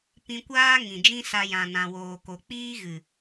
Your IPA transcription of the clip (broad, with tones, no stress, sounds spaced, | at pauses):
p ĩ˧ kʷ aː˦ ŋ ĩ˨ d͡ʒ ĩ˦ s a˧ j ã˨ n ã˨ w oː˨ k o˨ k͡p iː˦ ɣ ɨ˨